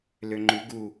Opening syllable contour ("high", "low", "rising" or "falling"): low